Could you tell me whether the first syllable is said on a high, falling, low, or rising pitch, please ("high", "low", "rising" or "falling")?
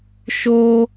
high